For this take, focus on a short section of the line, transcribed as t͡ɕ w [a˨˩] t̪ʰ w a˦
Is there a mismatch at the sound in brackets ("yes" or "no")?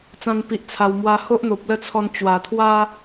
no